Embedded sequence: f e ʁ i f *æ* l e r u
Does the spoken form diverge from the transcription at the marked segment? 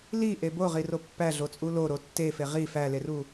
no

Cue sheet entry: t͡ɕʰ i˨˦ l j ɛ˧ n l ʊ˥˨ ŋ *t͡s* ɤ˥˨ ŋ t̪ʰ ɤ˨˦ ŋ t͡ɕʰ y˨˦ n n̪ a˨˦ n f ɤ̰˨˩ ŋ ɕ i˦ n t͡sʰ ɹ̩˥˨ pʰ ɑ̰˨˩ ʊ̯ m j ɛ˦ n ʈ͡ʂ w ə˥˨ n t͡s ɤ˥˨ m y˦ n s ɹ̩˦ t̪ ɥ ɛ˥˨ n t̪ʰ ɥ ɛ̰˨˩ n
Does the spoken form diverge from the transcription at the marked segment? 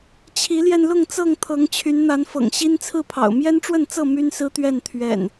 no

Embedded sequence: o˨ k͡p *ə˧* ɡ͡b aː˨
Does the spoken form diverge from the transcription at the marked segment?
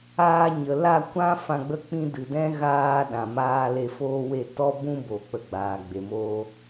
no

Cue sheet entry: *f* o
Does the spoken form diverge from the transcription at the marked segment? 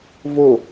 yes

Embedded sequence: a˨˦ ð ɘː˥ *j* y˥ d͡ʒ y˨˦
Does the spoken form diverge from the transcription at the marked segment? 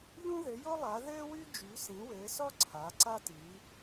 yes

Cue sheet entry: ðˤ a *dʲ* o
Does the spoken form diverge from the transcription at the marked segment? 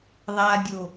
no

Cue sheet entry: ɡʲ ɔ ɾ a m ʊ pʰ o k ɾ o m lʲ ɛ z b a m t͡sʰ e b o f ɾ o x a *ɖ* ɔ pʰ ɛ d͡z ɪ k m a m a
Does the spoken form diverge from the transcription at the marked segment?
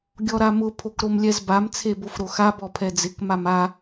yes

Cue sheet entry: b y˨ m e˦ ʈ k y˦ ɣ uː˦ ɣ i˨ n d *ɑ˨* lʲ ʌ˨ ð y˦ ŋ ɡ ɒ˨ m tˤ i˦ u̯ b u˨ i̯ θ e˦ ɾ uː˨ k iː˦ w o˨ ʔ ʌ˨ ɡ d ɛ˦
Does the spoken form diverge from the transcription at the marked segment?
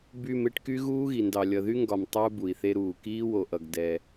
no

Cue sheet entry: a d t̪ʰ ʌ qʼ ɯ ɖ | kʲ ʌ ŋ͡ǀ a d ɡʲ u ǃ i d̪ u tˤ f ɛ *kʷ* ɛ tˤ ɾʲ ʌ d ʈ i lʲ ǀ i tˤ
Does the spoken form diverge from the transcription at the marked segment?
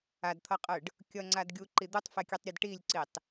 yes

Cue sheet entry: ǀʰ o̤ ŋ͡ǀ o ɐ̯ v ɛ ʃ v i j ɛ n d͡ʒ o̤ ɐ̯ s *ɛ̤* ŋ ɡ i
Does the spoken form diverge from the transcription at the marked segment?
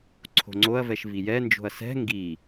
no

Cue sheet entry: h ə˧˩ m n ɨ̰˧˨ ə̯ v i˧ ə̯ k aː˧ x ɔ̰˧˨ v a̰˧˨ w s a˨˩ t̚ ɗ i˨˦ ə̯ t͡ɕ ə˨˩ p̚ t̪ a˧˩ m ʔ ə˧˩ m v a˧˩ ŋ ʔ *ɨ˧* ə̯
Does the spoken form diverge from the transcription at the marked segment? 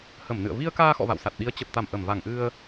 no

